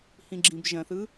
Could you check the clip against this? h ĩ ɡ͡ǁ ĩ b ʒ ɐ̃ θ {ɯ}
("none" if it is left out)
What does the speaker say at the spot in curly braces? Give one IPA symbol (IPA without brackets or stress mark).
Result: ɯ